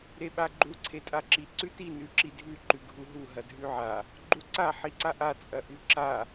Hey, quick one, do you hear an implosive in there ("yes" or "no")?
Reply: yes